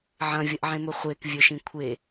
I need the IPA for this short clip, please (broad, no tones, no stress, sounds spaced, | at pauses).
ʕ ɐ̃ vʲ ɐ ʔ ʕ ẽ m ɵ χʷ e k vʲ ɵ ʃ ĩ kʷʰ e